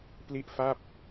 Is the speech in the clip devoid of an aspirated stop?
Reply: yes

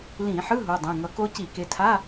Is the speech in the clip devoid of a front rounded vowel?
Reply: yes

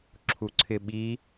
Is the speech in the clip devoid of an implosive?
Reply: no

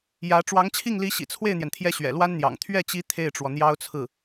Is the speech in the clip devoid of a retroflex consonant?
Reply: no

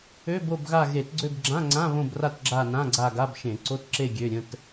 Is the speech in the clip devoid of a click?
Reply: no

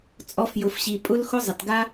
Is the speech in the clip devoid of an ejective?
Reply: no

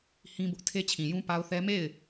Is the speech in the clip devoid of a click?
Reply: yes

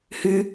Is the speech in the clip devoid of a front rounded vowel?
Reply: no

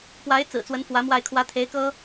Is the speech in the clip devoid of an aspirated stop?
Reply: no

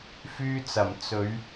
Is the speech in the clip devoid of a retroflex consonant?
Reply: yes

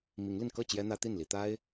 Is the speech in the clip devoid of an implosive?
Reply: yes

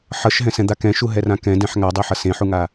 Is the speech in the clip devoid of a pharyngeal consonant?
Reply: no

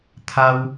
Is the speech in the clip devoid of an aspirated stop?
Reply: no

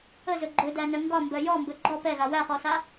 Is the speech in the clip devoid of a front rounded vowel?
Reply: no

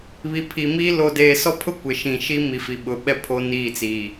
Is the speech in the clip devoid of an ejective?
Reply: yes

